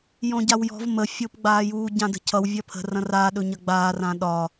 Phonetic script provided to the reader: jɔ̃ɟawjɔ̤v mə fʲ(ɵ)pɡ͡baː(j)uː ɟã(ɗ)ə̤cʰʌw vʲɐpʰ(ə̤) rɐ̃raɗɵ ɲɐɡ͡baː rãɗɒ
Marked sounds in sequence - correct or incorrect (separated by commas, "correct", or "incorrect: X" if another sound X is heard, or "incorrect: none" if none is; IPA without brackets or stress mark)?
incorrect: o, correct, incorrect: d, correct